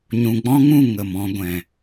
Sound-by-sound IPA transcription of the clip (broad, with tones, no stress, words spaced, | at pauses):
ɲũ˨ɡ͡bɔ̃˦ŋũ˦˨ ŋə˨mɔ̃˧ɡʷɛ̃˨